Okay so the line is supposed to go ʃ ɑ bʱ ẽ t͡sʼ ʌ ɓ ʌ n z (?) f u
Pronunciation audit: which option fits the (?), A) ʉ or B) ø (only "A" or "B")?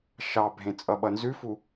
A